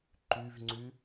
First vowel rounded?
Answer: yes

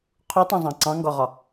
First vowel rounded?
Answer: yes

